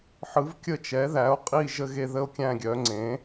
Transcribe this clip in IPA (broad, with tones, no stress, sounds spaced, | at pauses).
ħ ɯ˩˥ v kʲ ə˦˨ t͡ʃ ɛ˩˥ ð æ˩˥ o̯ qʼ i˦˨ ʒ ə˦˨ ɣ e˦˨ ð ə˦˨ o̯ kʲ æ̃˦˨ ɡʲ œ˩˥ ŋ͡ǀ ẽ˩˥